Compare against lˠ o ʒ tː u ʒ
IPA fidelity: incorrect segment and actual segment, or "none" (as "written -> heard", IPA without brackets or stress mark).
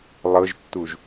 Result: o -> ɤ